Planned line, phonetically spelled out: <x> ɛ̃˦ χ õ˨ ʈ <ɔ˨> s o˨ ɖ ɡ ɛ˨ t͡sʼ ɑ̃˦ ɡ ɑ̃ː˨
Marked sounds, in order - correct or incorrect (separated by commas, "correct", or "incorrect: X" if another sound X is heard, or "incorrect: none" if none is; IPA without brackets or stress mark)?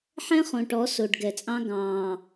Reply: incorrect: ħ, incorrect: ɔ˨˦